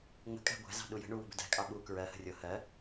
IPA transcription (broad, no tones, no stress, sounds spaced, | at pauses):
ŋ͡m ə̤ kʼ æ̤ ɡʷ æ̤ z ɑ̤ ɗ u j ə̤ ɳ u w ə̤ b ə̤ d æ̤ kʼ ɑ ɓ u k ɹ ɜ h ə̤ rʲ ʊ h ɜ